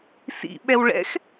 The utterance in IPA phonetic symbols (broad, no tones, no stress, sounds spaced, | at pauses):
s ḭ ɓ ɛ w ɭ ɛ̰ x